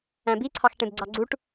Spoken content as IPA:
æ̃ b i ǀʰ ɑ x ʈ ẽ b ɡ͡ǀ ɑ ɡ͡ǀ u ʈ

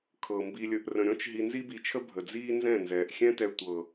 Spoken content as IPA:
kʰ ɤ˨ m b i˧ lʲ ə˧ ʔ r ə̃˨ ɾʲ ɔ̃˦ t͡ʃ ɦ i˧ n z i˦ b i˧ t͡ʃʰ ə˦ bʱ ə˨ d͡z iː˦ n z ɛ̃˦˨ n z ɛː˨ ʔ xʲ ɛ̃˦ t ɛ˧ tʷ ɤ˨

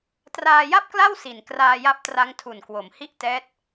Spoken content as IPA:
t r aː˧ j a˥˩ p̚ k l a˥˩ w s i˨˩ n k r aː˧ j a˦˥ p̚ t r a˦˥ ŋ tʰ u˨˩ n k w o˩˦ m h i˥˩ ʔ t ɛː˦˥ t̚

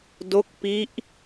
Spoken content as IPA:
d o˦˥ k̚ p i˦˥ ʔ

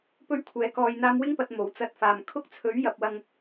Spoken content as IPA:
p ɵ˥ ɥ kʷʰ ɛː˨˧ k ɔː˨ j n̪ aː˧ m w ɪ˥ ŋ p ɐ˨ t̚ m o˨˩ w t͡s ɐ˧ t̚ f aː˨ m kʰ ʊ˥ k̚ t͡sʰ ɵ˨˥ ɥ j ɐ˨ p̚ w ɐ˧ ŋ

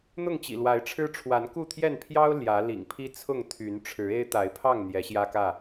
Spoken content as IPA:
n̪ ʊ˥˨ ŋ t͡ɕ ḭ˨˩ l w a˨˦ ɪ̯ ʈ͡ʂʰ ɻ̩˦ ʈ͡ʂʰ w a˨˦ n k u˥˨ t̪ʰ j ɛ˥˨ n pʰ j ɑ˦ ʊ̯ l j ä˨˦ l ḭ˨˩ ŋ pʰ i˦ t͡sʰ ʊ˥˨ ŋ t̪ʰ y˨˦ n ʈ͡ʂʰ ɻ̩˨˦ e˦ ɪ̯ t̪ a˨˦ ɪ̯ pʰ ɑ˥˨ ŋ n̪ j ɛ˨˦ ɕ j ä˦ k ä˥˨

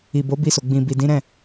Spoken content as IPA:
i˨ b o˨˦ b i˧ s o˨ ɡ͡b ĩ˨ b i˨ d ĩ˨˦ ɾ ɛ̃˦˨

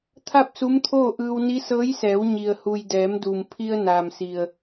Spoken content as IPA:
t̪ʰ a˥˨ p̚ s u˧˥ m t̪ʰ oː˥˨ ʔ ɯː˧ w n i˧˥ s ɤː˧˥ j s ɛː˩˧ w ɲ i˩ ə̯ h u˩ j d ɛː˩˧ m d u˩ m pʰ i˧ ə̯ n aː˩ m s i˩ ə̯

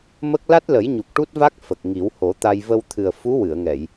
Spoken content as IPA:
m ə˦˥ k̚ l a˦˥ t̚ l ə˨˩˦ j ɲ u˨˩ k̚ ʈ u˦˥ t̚ v a˦˥ k̚ f ə˨˩ k̚ ŋ i˨˩˦ w h o˨˩˦ t̪ a˧ j v ə˧ w t̪ʰ ɨ˨˩ ə̯ f u˧˥ w ɨ˨˩˨ ə̯ ŋ ɛ˨˩˨ j

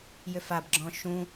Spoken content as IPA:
j ʏ f a b ɡ͡ǁ ɔ̃ ʃ ũ

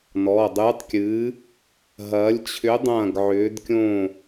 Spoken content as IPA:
n ɔː˩˧˩ dˤ ɨː˨˥ tˤ kʲ ɨː˨˥ | ɦ ɐː˨˥ lʲ t͡ɕʰ ʏ˨˥ dˤ ɐ̃ː˥˨ ɡ ʕ ʏː˨˥ d kʲ õ˥˨

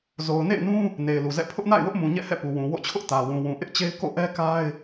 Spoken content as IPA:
z o˨ ʊ̯ n ḛ˦˨ ɪ̯ n ũ˦ | n e˨ ɪ̯ l u˨ z ɛ̰˦˨ pʰ ʊ˦ ʔ n a̰˦˨ ɪ̯ w ʊ˦ ʔ m ũ˨ ɲ ɛ̰˦˨ h ɛ̰˦˨ p u˨ w ũ˨ w o̰˦˨ t͡ɕʰ ʊ˦ ʔ t ä˨ w ũ˨ w ũ˨ ʔ ɪ˦ ʔ t͡ɕ e˦ ɪ̯ k o̰˦˨ ʔ ɛ˦ k a˦ ɪ̯

